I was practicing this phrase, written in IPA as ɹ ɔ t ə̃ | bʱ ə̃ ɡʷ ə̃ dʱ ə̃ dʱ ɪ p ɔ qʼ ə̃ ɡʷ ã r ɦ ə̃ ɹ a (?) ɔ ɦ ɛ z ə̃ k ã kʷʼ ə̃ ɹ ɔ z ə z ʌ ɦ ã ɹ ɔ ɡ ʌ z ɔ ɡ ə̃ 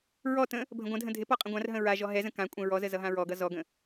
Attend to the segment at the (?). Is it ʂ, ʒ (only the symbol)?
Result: ʒ